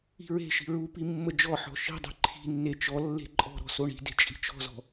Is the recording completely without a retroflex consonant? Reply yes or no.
no